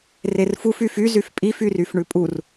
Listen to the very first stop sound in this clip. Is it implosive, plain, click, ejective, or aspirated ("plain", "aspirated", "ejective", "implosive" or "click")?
ejective